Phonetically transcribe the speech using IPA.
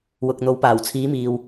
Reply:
wʊ˨k̚ n̪o˨˥wpaː˨˩wt͡sʰiː˨˥miː˨w

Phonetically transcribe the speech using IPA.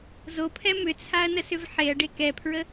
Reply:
zopʰɛ mʏt͡sʰaɐ̯nəsʏv ħeɐ̯ɖe kɛpʰɹə

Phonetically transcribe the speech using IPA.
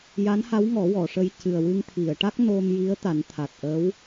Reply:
ja˧˥nha˧˥wŋɔ˨˩˦ wɔ˨˩˨ʂə˧j cɨ˨˩ə̯wɨ˧ŋ t̪ʰi˨˩˨ə̯ʈa˦˥k̚ no˧mji˧˥ə̯ t̪a˨˩˦nt̪ʰa˨˩t̚ʔə˧˥w

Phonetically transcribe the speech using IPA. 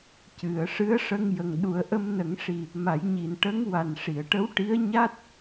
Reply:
cɨ˨˩˨ə̯ʂɨ˧˥ə̯ ʂə˧ŋjə˨˩ŋɗu˨˩˦ə̯ ʔə˧mnə˨˩˦ŋʂi˨˩ | ma˨˩˦jɲi˨˩n ʈə˧˥ŋwa˨˩nʂi˨˩˨ə̯ʈə˧˥w ʈi˧˥ə̯ɲa˦˥t̚

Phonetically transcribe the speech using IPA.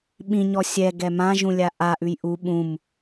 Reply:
ɓĩɲɔ sʲɛɡɛ mãʒũlʲa ʔaʔʉj ʔu ɓũm

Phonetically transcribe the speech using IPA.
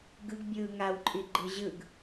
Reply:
ɡɯɡ bʲɯːŋaw ǃʼiɡ͡ǃɯʑɯɡ

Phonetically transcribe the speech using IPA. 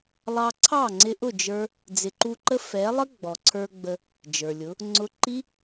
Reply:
lˠɑ˧ǀʰɑ˦˨ŋ͡ǀɪ˧ʔʊ˦˨ d͡ʒə˞˦ | d͡zɪ˨ǃu˧ǃə˦ fɛ˨˦lˠə˦ ɡ͡bɔ˨ǀʰə˞˧ ɡ͡bə˧ | d͡ʒə˞˨lʲʊ˨˦ | ŋ͡ǀʊ˧ǃi˦

